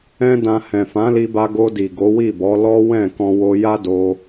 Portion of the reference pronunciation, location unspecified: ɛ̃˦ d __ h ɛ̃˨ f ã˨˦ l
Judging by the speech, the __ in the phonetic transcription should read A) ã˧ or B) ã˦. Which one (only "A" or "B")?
A